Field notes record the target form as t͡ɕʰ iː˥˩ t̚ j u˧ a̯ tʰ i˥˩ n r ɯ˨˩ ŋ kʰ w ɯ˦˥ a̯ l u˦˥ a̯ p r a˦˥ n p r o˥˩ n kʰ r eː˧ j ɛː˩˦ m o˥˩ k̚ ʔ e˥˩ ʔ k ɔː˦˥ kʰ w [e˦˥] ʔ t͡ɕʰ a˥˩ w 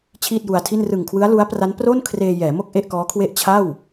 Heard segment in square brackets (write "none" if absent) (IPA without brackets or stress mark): e˥˩